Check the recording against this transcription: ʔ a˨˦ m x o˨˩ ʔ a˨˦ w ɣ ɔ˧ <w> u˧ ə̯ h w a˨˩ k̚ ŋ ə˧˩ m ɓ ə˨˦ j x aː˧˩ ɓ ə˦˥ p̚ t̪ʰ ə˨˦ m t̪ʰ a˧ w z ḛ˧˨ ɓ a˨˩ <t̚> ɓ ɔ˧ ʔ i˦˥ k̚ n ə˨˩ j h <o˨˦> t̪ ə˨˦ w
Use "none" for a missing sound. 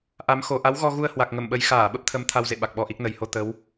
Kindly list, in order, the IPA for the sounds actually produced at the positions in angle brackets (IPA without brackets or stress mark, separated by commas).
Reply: ɣ, k̚, o˧